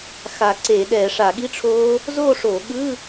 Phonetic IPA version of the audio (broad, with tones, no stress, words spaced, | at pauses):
xa˧˩˧ǀe˧˩˧ ɗɛ˧˩˧ʂa˧˩˧ɠi˧˥˧ʈ͡ʂʰoː˦˥ | zo˥˨ʂo˧˩˧ɠɯ˧˥˧